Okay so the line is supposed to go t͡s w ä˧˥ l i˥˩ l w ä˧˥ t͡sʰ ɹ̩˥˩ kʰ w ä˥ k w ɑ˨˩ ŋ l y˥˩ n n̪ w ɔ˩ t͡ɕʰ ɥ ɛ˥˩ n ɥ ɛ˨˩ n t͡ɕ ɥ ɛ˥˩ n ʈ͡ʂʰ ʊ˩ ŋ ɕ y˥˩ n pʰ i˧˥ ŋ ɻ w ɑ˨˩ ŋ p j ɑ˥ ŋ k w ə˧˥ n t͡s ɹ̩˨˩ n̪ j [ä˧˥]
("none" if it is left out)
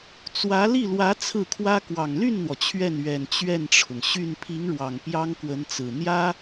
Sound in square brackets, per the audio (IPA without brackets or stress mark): ä˥